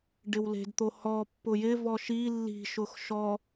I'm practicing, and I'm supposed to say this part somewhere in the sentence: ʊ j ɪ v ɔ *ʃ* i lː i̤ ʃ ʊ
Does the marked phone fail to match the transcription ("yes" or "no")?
no